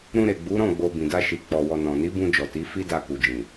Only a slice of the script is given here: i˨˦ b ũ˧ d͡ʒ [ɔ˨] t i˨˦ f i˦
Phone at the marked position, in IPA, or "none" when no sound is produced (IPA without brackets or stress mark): ɔ˨